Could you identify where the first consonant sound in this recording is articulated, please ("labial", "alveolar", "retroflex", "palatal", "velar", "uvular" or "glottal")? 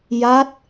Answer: palatal